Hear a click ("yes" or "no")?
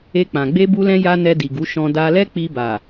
no